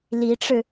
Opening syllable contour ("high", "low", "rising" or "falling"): rising